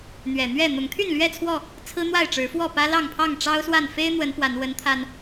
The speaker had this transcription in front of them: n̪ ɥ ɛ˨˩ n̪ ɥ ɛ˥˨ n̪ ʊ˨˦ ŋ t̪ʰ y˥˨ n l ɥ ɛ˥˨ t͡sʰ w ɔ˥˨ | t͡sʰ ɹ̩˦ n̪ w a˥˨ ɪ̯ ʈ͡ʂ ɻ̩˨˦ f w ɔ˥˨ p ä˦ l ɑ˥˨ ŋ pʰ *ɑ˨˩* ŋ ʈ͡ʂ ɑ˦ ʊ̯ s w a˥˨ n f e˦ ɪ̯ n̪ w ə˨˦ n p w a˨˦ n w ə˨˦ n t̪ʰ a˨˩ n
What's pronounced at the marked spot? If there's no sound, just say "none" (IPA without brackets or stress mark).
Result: ɑ˥˨